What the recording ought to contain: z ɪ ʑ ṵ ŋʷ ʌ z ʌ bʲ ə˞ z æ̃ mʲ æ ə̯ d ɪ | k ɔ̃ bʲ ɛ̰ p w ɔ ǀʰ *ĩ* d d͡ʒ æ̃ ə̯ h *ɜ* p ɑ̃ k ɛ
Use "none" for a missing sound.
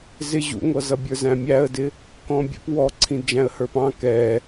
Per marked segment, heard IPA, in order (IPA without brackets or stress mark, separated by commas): ĩ, ə˞